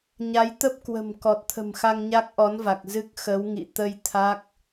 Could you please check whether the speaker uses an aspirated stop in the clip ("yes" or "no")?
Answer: yes